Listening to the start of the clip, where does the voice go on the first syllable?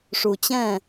low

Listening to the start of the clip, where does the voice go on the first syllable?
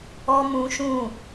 high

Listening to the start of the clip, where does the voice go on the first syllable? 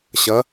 rising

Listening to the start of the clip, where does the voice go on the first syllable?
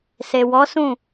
low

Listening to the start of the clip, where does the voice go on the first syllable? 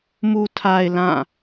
low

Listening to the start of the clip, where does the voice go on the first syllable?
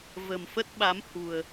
low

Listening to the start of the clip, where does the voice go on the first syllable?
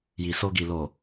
low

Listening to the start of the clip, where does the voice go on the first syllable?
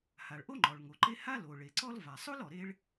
low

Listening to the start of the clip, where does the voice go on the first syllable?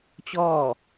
falling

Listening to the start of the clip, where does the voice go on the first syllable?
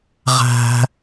high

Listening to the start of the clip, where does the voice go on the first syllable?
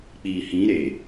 low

